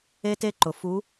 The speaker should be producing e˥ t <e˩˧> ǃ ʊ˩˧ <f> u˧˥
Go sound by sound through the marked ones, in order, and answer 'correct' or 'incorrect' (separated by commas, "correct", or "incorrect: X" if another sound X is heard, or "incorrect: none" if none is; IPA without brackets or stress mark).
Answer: incorrect: e˥, correct